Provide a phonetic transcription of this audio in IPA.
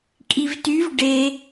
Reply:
kʼ i v t y v ɖ e

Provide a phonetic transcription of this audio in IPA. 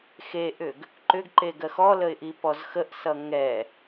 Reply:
x e ʔ ʏ ɡ | ǃ ʏ ɡ ǃ e ɡ ɜ x ɔ l ə ɪ̯ ʔ i p ɔ z x ə ʔ s ʌ ŋ ɛ

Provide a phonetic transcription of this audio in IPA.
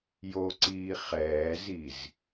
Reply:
j o ǀ iː χ ɛː z i z

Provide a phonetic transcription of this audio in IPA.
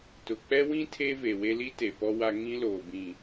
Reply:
t ʊ˨ k͡p ɛ˦ w ĩ˦ tʰ e˦ v e˨ w e˦ l i˦ t e˨ p ɔ˦ w a˦ ŋ ĩ˦ l oː˨ b ĩ˨

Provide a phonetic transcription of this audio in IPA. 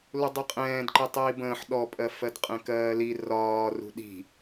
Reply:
l u dˤ i qʼ ɛ̃ː d ǃ i tˤ iː b ə̃ː ħ ɗ ɔ pʼ ɜ f ɜ d qʼ ɛ̃ k ɜː l i r ɒː r ṳ ɗ i̤

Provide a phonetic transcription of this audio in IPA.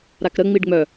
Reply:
ɾ a k ɾ ə ŋ͡m i ɖ ŋ͡m œ

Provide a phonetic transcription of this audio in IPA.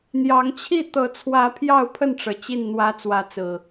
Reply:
n̪ j ɑ˨˦ ŋ t͡ɕʰ i˥˨ t̪ ɤ˨˦ t͡sʰ w ä˨˦ pʰ j ɑ˥˨ ʊ̯ pʰ ə˥˨ n ʈ͡ʂ ɤ˩ t͡ɕ i˥˨ n n̪ w ä˦ t͡s w ä˨˦ t͡s ɹ̩˨˩

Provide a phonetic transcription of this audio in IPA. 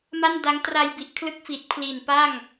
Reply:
m a˥˩ n d a˦˥ ŋ t r a˧ j b i˨˩ ʔ kʰ l ɯ˦˥ k̚ f i˨˩ t̚ pʰ l i˨˩ n p a˥˩ ŋ

